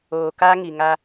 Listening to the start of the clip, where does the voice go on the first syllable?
low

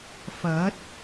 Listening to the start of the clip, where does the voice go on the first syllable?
rising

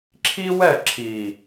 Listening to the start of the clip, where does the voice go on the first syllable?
high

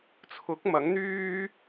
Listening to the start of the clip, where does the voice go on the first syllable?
rising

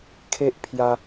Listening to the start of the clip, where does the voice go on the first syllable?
high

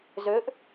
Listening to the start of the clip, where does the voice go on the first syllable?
rising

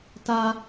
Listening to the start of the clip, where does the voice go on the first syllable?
high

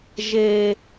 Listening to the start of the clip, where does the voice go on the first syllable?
high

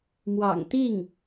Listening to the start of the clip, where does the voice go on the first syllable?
low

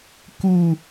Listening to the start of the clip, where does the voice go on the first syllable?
high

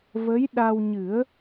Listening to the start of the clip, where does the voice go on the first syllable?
rising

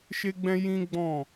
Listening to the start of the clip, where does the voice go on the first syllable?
high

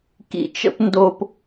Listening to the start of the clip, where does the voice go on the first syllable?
low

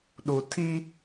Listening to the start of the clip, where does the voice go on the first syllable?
low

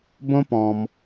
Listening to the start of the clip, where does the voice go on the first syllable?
high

